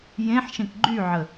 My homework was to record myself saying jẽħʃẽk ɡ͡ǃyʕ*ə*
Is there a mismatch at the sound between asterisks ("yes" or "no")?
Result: no